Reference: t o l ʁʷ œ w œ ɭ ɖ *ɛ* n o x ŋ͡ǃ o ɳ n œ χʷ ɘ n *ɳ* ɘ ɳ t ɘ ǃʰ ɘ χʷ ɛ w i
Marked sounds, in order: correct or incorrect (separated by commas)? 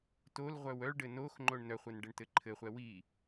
incorrect, incorrect